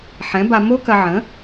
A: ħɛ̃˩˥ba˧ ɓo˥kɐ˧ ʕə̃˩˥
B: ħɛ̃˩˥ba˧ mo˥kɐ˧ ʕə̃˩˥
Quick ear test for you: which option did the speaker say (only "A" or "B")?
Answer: B